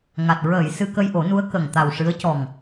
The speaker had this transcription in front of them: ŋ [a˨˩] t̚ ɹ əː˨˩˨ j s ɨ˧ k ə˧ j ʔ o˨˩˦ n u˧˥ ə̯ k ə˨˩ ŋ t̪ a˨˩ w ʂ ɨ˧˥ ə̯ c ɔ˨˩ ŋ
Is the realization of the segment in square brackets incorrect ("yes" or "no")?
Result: no